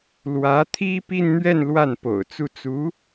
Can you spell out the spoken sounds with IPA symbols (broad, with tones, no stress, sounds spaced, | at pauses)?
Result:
l w ä˧˥ t̪ʰ i˥ p i˥˧ n n̪ ɥ ɛ˥˧ n l w a˥˩ n p o̰˨˩ ʊ̯ t͡s u˥˩ t͡s u˧˥